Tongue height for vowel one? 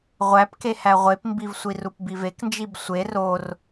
low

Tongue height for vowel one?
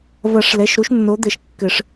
low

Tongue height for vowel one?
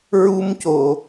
high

